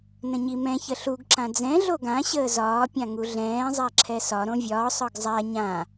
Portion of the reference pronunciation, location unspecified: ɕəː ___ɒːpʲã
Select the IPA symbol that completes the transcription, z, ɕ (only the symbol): z